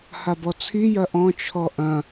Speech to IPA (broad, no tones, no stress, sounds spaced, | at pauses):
h a b ɔ t͡sʰ i j ɐ ʔ ɔ̃ t͡ʃʰ ɔ ʔ ɐ̃